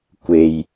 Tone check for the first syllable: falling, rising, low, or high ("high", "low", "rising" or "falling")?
low